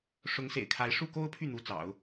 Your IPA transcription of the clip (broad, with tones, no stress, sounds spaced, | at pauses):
ʂ ʊ˧˥ ŋ s ḛ˨˩ ɪ̯ kʰ a˧˥ ɪ̯ ʂ u˥˩ k o˥ ʊ̯ pʰ y˥˩ n̪ u˧˥ t͡s ɑ̰˨˩˦ ʊ̯